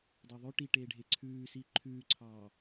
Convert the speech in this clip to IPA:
dˤœðˤɵ ʈiʈeːɖʱe ǀʰʉːsi ǃʰʉːǀʰɑː

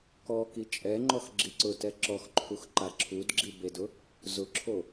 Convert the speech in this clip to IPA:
kɔ kit͡ʃʼɛŋ͡ǃɔx ɡ͡ǁiǀʊtɛ ǁɔxǃʰux ǃaǁʰudɡ͡ǁi bedʊ | zʊǁʰo

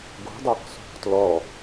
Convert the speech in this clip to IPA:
ɡo̤dˤoq so̤qtlɔ

